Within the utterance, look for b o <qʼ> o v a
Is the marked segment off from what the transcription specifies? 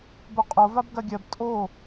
no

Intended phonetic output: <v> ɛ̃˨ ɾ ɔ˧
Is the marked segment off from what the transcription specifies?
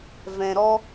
no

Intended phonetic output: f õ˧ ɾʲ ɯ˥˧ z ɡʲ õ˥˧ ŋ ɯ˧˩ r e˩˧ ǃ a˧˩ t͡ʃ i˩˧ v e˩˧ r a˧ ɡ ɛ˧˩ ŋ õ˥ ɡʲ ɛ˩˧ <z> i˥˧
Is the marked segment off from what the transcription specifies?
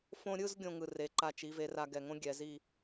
no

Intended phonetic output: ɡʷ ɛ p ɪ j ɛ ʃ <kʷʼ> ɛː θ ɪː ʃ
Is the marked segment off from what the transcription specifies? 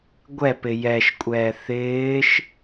no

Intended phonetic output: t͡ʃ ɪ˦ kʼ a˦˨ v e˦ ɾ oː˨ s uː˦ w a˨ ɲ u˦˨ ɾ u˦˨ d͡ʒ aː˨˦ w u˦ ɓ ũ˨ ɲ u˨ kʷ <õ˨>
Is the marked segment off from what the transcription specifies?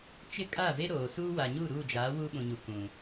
yes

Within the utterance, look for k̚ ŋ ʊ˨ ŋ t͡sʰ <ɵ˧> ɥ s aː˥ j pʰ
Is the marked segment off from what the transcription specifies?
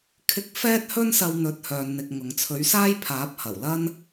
yes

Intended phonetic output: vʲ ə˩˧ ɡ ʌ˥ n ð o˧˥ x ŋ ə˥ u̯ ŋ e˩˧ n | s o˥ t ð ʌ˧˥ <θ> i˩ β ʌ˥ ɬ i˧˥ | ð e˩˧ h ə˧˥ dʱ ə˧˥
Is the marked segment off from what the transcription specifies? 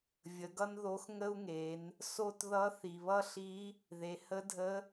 no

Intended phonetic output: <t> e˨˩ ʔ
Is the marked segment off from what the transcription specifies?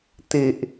no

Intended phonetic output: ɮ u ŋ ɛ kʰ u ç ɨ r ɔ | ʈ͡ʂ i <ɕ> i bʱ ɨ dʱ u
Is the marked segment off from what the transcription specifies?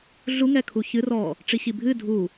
no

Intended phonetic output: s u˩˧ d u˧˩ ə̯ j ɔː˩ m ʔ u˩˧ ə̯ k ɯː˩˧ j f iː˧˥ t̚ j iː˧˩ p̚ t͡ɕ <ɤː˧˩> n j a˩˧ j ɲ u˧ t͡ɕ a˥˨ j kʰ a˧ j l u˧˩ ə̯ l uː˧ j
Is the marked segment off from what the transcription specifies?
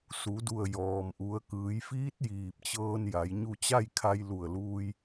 yes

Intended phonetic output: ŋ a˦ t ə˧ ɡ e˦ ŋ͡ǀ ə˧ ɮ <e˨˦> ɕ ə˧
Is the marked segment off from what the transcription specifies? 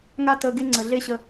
yes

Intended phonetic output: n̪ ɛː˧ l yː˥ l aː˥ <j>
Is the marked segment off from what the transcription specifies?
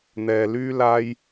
no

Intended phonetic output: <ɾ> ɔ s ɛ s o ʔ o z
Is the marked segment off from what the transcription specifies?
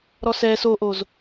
no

